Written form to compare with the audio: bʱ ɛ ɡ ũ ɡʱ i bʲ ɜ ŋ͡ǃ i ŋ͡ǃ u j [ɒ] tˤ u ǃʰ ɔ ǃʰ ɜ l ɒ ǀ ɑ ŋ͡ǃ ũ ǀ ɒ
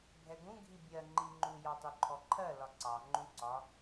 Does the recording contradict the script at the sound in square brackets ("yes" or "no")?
yes